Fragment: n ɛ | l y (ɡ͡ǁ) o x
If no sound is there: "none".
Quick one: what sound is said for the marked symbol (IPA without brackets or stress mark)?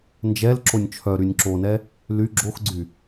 ɡ͡ǁ